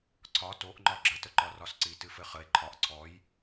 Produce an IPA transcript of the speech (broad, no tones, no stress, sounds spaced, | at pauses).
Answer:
ǀʰ ɒ t o ʔ ŋ͡ǃ ɒ ɡ͡ǁ ə t ə ǃ ɒ r ɒ s ǀ i t ɨ f ɘ χ ə e̯ ǃʰ ɒ ʔ ǀʰ ɔ j